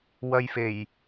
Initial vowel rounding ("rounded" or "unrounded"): unrounded